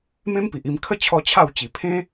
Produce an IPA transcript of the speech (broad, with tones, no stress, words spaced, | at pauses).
mẽ˦mpi˨ʔi˧m kʰə˥˧ t͡ɕʰɔ˦t͡ɕʰa˥˧w t͡ɕi˨˩pʰẽ˦